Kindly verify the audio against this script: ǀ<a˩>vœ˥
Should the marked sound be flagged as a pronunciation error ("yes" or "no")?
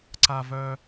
yes